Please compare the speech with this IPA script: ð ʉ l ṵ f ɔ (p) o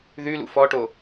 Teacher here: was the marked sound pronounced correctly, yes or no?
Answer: no